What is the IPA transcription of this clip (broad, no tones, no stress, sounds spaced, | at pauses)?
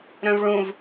ɾ œ̃ v ɭ ũ v